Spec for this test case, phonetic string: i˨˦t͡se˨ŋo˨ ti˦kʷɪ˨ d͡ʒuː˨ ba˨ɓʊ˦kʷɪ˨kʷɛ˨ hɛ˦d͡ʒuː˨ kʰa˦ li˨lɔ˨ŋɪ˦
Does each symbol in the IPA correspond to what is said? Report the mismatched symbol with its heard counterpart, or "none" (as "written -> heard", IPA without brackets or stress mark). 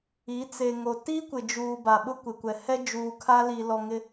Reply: none